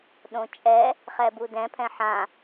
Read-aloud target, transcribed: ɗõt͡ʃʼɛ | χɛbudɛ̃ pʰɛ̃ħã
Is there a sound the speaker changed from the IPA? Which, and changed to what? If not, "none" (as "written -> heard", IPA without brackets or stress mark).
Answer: none